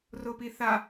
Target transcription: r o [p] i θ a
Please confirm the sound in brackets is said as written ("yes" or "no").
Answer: yes